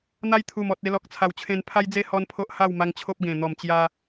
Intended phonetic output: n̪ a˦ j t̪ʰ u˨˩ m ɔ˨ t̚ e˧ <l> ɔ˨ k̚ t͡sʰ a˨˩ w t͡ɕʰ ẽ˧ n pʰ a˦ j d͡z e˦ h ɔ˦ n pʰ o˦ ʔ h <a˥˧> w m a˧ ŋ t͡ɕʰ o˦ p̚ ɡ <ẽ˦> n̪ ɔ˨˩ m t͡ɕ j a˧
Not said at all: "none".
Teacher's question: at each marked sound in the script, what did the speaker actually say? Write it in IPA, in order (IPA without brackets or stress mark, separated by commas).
l, a˥˧, ẽ˨˩